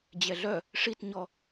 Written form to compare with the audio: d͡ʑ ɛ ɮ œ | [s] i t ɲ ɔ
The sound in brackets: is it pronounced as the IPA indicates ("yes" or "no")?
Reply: no